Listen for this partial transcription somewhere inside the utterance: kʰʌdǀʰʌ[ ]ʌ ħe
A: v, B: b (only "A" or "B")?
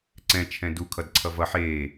A